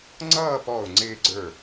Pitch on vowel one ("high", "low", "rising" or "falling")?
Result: falling